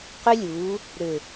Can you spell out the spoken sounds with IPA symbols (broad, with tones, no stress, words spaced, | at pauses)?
qʏ˦lʲu˨˦ | ɾʏ˨